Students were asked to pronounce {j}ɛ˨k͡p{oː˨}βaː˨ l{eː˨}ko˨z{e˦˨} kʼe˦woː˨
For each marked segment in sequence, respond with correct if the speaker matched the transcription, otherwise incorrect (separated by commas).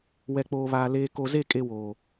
incorrect, correct, correct, correct